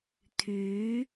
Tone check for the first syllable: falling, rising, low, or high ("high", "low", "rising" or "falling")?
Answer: rising